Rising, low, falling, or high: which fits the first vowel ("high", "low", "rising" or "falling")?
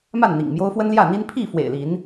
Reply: falling